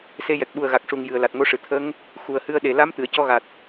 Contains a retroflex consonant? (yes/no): yes